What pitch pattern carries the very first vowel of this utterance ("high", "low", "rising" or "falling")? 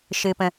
high